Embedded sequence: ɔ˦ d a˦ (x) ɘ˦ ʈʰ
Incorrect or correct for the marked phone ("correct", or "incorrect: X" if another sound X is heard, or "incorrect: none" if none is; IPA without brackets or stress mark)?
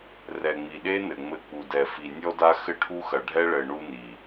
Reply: correct